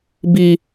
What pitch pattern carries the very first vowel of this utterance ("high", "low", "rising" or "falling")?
high